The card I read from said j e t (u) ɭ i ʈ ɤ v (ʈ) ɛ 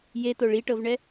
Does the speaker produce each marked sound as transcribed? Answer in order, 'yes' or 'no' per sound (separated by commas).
no, no